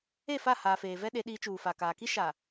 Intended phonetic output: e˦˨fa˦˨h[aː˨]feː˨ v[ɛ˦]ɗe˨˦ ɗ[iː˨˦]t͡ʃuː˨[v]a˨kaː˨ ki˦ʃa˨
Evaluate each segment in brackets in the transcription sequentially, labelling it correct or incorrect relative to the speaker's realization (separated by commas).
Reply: correct, correct, correct, incorrect